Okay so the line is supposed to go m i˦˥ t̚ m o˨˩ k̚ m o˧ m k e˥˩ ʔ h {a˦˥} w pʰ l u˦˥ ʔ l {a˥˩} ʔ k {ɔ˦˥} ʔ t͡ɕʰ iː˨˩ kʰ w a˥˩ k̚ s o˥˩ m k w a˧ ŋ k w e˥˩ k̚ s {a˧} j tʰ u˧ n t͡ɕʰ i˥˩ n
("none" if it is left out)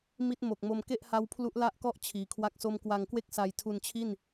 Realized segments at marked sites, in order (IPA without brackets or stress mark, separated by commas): a˦˥, a˥˩, ɔ˥˩, a˧